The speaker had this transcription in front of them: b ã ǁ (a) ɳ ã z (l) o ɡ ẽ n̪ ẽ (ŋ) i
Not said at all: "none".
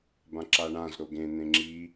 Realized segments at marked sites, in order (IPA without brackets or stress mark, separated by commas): a, ɾ, ŋ͡ǁ